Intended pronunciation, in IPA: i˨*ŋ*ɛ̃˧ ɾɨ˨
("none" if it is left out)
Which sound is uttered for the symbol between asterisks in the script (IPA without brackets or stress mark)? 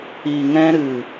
ŋ